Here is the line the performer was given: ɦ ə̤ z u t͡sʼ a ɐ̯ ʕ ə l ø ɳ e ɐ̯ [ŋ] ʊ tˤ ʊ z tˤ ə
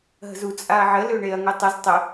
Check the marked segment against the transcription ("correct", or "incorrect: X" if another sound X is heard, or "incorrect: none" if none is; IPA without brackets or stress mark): correct